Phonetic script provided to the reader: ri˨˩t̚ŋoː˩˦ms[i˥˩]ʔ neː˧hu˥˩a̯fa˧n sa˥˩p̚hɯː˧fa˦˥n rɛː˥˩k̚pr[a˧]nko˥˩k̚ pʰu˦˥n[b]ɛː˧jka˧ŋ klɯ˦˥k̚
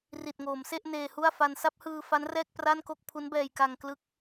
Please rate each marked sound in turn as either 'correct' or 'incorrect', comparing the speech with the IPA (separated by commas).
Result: incorrect, incorrect, correct